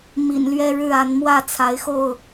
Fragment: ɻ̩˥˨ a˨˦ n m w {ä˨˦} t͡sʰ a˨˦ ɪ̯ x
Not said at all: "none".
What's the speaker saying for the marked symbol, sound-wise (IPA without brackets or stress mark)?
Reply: ä˥˨